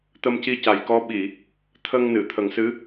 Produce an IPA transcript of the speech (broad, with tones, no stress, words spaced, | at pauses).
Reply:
t̪ə˧mci˧ca˨˩jkɔ˧˥ ɓi˨˩˨ | t̪ʰə˧ŋnɨ˨˩˨ t̪ʰə˨˩ŋsɨ˧˥